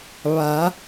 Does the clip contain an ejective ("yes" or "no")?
no